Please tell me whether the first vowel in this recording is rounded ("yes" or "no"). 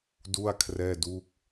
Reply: yes